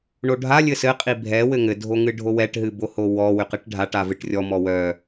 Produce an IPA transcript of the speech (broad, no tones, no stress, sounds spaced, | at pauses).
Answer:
ɳ o ɖʱ a lʲ ɘ s ɘ qʼ i bʱ ɛ w ɘ ŋ ɘ dʱ o ŋ ɨ ɖʱ o w ɛ ʈ ɦ ɨ b o h o w ɔ w ʏ q ɨ ʈ ɖʱ a ʈ a v ɨ ʈ rʲ ɔ m ɔ w œ